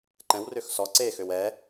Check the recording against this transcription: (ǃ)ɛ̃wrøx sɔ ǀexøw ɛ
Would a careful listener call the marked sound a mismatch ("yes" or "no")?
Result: no